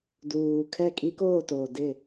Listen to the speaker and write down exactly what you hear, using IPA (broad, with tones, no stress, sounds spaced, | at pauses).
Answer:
d uː˨ kʰ ɛ˦˨ kʼ i˦ k oː˦˨ t oː˨ d ɪ˦˨